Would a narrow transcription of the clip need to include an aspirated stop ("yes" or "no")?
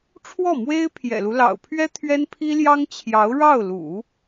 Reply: yes